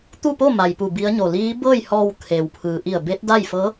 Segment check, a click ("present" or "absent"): absent